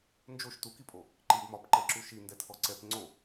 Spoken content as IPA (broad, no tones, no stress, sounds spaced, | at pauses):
n d͡ʒ o ʃ t u k i pʼ o | ǃ i b m ɒ p ǃ ɛ ǁ u ʃ i n d ɛ tʰ ɔ ǀ ɛ p ŋ͡ǀ o